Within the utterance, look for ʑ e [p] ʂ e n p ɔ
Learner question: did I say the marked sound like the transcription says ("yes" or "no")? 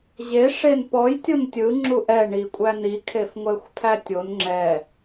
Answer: no